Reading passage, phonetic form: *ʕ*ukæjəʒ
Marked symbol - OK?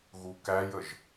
no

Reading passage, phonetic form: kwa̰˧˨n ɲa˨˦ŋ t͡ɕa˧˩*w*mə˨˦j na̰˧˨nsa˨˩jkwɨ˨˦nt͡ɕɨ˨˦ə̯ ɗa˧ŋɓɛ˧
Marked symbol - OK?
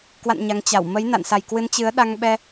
yes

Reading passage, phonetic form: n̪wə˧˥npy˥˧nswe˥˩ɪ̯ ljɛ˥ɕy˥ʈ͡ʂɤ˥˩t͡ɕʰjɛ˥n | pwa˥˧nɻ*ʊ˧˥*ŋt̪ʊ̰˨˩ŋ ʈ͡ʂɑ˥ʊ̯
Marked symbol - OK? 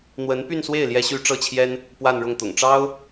no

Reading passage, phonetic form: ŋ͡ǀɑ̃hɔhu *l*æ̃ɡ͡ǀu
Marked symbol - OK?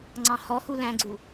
yes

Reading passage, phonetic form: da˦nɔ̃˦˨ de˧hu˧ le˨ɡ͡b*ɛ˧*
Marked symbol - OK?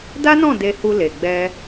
yes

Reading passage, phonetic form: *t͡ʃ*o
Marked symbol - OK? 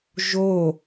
no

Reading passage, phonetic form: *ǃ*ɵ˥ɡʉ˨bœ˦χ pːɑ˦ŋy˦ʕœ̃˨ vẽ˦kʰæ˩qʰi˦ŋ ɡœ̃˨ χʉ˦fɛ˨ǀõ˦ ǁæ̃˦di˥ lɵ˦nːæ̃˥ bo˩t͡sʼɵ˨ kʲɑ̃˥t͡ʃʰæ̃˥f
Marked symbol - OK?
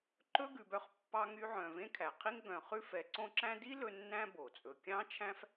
yes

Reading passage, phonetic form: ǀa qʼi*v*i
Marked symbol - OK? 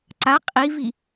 yes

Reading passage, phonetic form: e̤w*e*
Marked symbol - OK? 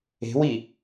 no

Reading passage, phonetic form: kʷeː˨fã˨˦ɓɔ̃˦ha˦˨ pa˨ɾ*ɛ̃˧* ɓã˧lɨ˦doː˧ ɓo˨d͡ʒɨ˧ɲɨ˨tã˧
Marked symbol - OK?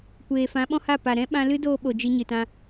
no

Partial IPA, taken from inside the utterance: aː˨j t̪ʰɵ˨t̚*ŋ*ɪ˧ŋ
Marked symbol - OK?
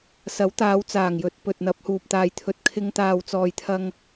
no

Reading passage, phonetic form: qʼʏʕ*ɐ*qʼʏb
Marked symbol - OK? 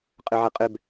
yes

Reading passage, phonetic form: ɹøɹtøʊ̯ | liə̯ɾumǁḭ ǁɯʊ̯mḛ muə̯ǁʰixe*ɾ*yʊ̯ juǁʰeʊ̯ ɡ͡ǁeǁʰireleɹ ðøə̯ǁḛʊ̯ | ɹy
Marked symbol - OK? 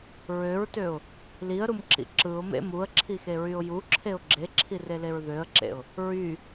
no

